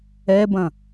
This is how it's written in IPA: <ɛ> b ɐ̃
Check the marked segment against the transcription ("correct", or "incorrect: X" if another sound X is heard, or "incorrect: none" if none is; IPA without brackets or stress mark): correct